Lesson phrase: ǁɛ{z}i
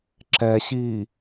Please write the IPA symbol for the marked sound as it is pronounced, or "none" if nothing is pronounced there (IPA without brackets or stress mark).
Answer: ɕ